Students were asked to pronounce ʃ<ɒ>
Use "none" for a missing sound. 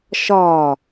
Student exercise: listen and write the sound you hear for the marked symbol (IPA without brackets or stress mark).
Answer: ɒ